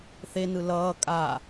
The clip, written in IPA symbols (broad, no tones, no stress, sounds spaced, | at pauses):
θ e n ɯ l ʌː kʼ a